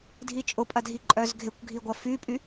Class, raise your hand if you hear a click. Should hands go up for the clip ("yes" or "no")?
yes